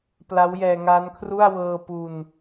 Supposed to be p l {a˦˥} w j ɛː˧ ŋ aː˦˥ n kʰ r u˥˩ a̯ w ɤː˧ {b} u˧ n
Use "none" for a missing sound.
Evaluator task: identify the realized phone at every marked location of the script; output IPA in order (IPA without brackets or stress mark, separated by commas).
a˦˥, p